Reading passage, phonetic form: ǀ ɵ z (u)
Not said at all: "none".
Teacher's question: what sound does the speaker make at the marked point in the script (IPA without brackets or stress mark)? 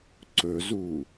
u